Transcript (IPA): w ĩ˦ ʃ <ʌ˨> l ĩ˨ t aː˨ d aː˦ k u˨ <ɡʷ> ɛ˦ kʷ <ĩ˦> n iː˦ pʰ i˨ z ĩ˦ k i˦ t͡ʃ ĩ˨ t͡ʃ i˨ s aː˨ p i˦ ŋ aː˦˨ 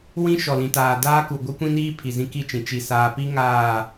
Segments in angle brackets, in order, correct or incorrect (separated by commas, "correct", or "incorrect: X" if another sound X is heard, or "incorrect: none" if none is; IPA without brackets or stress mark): incorrect: ɔ˨, correct, correct